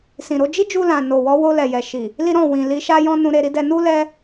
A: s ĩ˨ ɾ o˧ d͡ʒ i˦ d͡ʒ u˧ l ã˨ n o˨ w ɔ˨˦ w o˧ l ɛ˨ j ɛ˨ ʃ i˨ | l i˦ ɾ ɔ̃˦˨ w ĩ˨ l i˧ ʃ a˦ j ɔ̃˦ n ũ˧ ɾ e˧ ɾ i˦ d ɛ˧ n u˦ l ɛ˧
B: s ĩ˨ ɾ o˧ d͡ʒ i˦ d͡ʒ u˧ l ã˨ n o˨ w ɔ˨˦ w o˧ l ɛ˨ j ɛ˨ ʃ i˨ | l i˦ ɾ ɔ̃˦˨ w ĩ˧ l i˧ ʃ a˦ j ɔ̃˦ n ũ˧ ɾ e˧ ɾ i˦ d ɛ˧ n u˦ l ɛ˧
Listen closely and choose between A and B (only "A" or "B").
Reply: A